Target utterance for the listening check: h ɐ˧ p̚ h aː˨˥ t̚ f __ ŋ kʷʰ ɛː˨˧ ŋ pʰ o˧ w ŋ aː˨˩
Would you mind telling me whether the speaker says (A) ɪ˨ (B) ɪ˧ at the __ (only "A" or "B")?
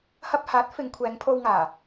B